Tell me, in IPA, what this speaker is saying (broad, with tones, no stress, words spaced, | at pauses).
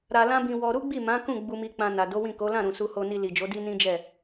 ɾa˧lã˦bĩ˧wɔ˧ ɾu˦ɡ͡bi˦˨ mã˨˦kũ˦˨ ɡ͡bu˧mi˧ k͡pã˧na˨ do˨˦wĩ˦˨ko˨˦ lã˦˨ɾũ˨ su˧ho˧ni˧ li˨d͡ʒo˨˦ di˦nĩ˦d͡ʒɛ˦˨